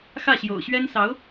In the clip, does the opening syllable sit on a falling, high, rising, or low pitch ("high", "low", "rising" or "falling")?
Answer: falling